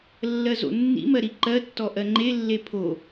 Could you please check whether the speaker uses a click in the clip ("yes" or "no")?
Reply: yes